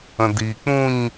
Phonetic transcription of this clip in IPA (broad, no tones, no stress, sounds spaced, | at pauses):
ə̃ d i k͡p ũ ɲ